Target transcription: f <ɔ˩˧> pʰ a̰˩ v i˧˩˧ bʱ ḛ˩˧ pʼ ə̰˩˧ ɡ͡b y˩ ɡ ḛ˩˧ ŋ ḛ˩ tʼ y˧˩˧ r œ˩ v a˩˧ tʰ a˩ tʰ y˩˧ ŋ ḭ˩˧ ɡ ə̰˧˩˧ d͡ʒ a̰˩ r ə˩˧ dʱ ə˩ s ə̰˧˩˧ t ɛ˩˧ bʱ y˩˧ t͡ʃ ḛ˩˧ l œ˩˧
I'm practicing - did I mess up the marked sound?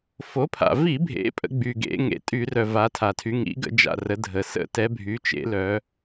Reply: yes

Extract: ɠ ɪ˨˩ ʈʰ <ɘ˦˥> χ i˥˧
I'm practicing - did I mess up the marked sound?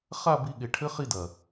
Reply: no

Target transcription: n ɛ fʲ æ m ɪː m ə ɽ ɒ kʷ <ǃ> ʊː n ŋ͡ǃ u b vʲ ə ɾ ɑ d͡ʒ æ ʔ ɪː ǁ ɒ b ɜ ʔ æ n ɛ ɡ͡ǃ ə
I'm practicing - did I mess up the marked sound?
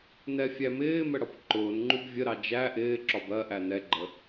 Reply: no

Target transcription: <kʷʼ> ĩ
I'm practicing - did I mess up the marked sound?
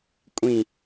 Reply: no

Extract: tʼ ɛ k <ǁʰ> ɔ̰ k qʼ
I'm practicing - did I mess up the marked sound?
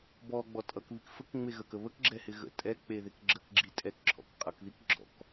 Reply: no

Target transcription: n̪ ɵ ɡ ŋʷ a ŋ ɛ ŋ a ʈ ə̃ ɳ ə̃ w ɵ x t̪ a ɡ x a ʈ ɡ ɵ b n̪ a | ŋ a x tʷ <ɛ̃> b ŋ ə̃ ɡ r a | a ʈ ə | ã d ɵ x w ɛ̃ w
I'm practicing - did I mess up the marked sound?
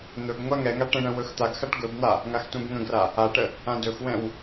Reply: no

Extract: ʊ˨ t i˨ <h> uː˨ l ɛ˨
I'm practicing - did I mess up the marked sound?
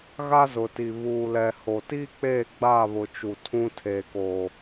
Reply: yes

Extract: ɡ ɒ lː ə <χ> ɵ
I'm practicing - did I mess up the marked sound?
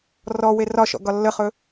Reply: no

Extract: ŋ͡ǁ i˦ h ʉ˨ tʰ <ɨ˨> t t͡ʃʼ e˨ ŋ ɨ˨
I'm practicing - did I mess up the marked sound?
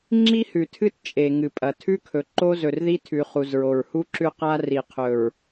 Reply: yes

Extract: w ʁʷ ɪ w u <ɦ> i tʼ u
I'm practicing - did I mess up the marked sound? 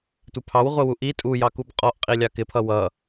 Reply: yes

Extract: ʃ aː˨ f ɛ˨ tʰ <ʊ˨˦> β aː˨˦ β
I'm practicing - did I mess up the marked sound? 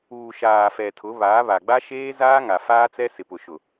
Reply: no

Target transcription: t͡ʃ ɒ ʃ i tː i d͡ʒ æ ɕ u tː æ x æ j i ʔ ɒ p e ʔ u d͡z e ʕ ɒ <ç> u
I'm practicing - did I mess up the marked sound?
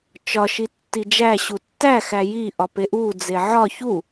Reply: no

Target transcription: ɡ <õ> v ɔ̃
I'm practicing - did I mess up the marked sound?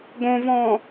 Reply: no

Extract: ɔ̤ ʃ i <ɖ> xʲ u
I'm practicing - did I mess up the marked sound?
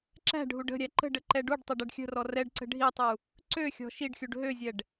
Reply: no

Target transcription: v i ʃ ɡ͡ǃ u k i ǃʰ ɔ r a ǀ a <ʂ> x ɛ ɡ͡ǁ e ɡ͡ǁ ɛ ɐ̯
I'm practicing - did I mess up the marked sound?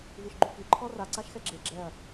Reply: yes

